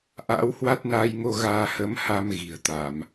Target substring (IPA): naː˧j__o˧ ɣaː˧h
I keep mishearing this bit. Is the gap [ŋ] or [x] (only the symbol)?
ŋ